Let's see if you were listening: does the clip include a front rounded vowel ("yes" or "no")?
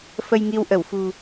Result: no